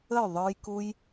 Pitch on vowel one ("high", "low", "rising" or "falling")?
falling